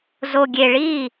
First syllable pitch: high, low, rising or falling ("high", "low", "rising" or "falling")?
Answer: low